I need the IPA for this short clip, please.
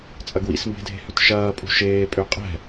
t͡sʼɐɡwḭsmbe̤dʱe̤ hʏtʃɐːpʼṳ ʃeːpʼø qʼɛ̤

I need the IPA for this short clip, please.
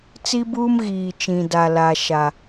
t͡si˦buː˦m ɣiː˨t͡ʃĩ˨da˨la˨ ʃa˨

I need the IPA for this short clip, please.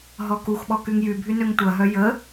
ɦɔkuxɓɔ kyŋjybʱy nøŋtʷɐɦœ jə

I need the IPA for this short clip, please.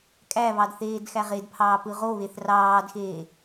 kʼæβɑd θeːdxæʁedpʰɑː pɯʁoβeθ rɑːdxeː

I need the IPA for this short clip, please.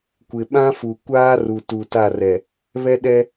kʷɪ˨ɓã˦fu˨ kʷaː˦ru˨ tu˨ta˦˨rɛ˨ | βɛ˦ɗɛ˦

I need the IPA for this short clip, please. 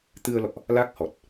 t̪ɨ˧ə̯lɔ̰˧˨ʔ | la˦˥k̚hɔ˨˩t̚

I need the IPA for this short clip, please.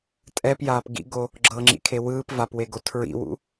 tʼɛpjaːp ɡḭɡo | ɡ͡ǁɤŋ͡ǁḭkʰe wɯːp vapweɡo tʰɹḭwṵ

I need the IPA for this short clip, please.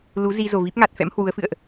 lu˨˦zi˧ zo˨˩vi˦˥p̚ŋa˨˩t̚fɛ̰˧˥m hwu˨˦ə̯fɨ̰˧˨ə̯ʔ

